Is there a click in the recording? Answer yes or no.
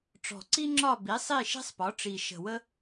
yes